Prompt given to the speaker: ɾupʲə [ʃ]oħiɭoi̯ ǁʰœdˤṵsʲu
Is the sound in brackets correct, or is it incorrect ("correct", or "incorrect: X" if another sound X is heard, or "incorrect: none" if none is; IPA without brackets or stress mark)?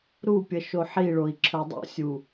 correct